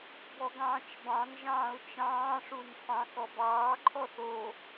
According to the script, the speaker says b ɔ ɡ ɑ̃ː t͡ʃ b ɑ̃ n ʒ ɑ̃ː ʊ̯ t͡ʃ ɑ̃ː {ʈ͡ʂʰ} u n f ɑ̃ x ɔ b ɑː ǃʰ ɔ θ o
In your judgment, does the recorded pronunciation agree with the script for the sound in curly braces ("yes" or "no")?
no